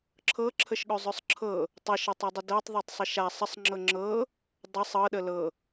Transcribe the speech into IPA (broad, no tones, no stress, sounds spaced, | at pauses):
ǁʰ ɤ ǁʰ ə ʃ ɠ ɵ zˤ œ sˤ ǁʰ ɤ | tˤ ɤ ʃ ɤ tˤ ɤ dˤ ə d ɤ tˤ ðˤ œ tˤ sˤ ə ʃ a sˤ ə sˤ ŋ͡ǁ ɤ ŋ͡ǁ ɤ | dˤ ɤ sˤ ɤ ɗ ə l ɤ